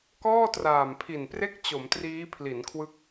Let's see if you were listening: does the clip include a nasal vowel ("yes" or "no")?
no